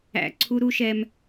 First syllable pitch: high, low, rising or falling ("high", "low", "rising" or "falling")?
high